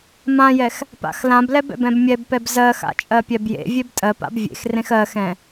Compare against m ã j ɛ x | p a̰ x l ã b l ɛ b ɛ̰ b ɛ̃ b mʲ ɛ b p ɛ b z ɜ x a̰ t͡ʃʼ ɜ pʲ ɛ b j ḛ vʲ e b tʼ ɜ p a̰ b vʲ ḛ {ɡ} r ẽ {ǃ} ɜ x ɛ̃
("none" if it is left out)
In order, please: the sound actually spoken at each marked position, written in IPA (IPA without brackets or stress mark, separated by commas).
x, x